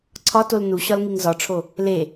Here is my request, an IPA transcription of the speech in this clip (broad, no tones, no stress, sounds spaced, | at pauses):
ǀʰ ɒ t o l n u ɕ ɒ l ŋ i ŋ z ɒ ʈ͡ʂʰ o | l e